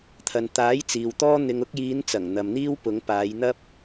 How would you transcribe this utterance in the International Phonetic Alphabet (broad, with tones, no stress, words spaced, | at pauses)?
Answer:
t̪ʰɐ˨nt̪aː˨˥j t͡siː˨wt̪ɔː˥ n̪ɪ˨ŋʊ˧k̚jiː˨˧n t͡sɐ˨˩ŋn̪ɐ˨mn̪iː˥w pʊ˨˧ŋpaː˨˧jn̪ɐ˥p̚